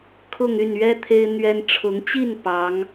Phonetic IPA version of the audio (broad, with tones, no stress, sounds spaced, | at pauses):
kʰ ʊ˥˧ ŋ y˥˩ n ɥ ɛ˥ t̪ʰ e˥ ɪ̯ n̪ ɥ ɛ˥ n ʈ͡ʂʰ ʊ˧˥ ŋ t͡ɕ i˥˩ n p ɑ˧˥ ŋ